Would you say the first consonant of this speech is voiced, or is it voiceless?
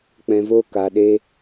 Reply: voiceless